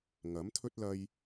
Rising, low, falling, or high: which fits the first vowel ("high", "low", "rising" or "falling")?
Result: rising